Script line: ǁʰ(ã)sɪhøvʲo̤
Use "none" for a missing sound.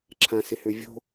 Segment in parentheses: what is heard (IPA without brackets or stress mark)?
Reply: ã